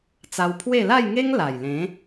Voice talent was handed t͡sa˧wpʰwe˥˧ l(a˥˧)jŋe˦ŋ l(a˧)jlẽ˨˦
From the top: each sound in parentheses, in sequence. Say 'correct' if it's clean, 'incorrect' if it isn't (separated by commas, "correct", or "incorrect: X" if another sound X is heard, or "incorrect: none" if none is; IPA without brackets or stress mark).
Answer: correct, incorrect: a˨˩